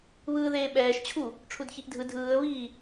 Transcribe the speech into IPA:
β ɯː ð eː ɓ ɛː ʃ t͡ɕʰ u | ʈ͡ʂʰ u d ç i ʔ dʱ ɯ dʱ ɯː ə̯ β iː

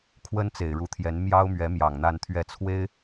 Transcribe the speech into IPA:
kʰ w ə˥ n t͡s e˨˩ ɪ̯ ɻ u˧˥ t̪ʰ j ɛ˧˥ n m j ɑ˥ ʊ̯ m ɥ ɛ˧˥ m j ɑ˨˩ ŋ n̪ a˥˧ n t̪ʰ ɥ ɛ˥˩ t͡sʰ w e˥ ɪ̯

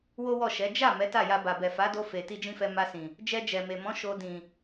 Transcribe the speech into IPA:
w o˦ w ɔ˦˨ ʃ ɛ˨˦ d͡ʒ a˦˨ m ɛ˨˦ t a˦˨ j a˧ b a˨ b ɛ˨ f a˨˦ d o˧ f e˨ t i˧ d͡ʒ ĩ˦ f ɛ˧ m a˧ s ĩ˨ | d͡ʒ ɛ˧ d͡ʒ ɛ˨ m e˨ m ɔ̃˨˦ ʃ o˧ d ĩ˨

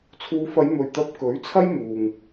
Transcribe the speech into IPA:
t͡sʰ uː˨˧ f ɐ˨˧ j m ɵ˨ ɥ t̪ ɐ˧ p̚ k ɵ˨˥ ɥ t͡sʰ ɐ˥ j m uː˨ ŋ

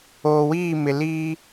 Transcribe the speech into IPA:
oː˨ w iː˦˨ m ɪ˨ l i˦

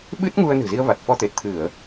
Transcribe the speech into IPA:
ɓ ɨ˦˥ t̚ ŋ u˧ ə̯ n ɨ̤˨˩ z i˧ ə̯ v a˨˩ t̚ f ɔ˧ t̪ e˨˩ t̚ t̪ʰ ɨ˧˩˨ ə̯

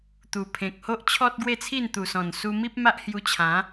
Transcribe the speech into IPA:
t̪ u˨˩ pʰ ẽ˨ k̚ h o˦ ʔ t͡ɕʰ ɔ˦ t̚ ɡ w e˥˧ t͡sʰ i˥˧ n t̪ u˨˩ s ɔ̃˨˩ n s u˧ m i˦ p̚ m a˦ ʔ h j u˧ t͡ɕʰ ã˨˦

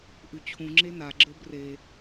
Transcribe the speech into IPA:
ʔ ʉ t͡ɕʰ ũ ŋ͡ǁ e n a ɡ͡ǁ ə˞ b r e

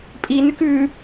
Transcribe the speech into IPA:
pʼ i n ʉ k ʉ

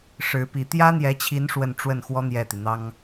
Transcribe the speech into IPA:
ʂ ɻ̩˧˥ p i˧˥ t̪ j ä˥ n̪ j ɛ˧˥ t͡ɕʰ i˧˥ n ʂ w ə˥˧ n ʈ͡ʂ w ə˥˩ n x w ɔ˥ n̪ j ɛ˥˩ t̪ i˩ n̪ ɑ˥ ŋ

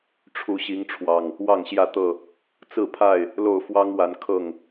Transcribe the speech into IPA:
ʈ͡ʂʰ u˨˦ ɕ i˨˦ ŋ ʈ͡ʂʰ w ɑ˨˩ ŋ | w ɑ˥˨ ŋ ɕ j ä˥˨ t̪ ɤ˥˨ | t͡s ɹ̩˥˨ pʰ a˥˨ ɪ̯ | l o˥˨ ʊ̯ f w ɑ˦ ŋ w a˨˦ n kʰ ɤ˥˨ ŋ

